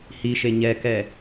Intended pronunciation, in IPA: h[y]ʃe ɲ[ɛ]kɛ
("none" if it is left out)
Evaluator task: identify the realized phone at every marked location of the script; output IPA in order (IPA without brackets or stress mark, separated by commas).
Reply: i, ɛ